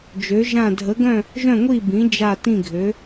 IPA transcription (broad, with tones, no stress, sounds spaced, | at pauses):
d͡ʒ ø˩˧ ʒ ã˧˩ dʱ ə˩˧ ɡ œ̃˧˩ | ʒ œ̃˧˩ ŋʷ i˧˩ b ĩ˩˧ d͡ʒ a˧˩ t ĩ˧˩ ɡʱ ø˩˧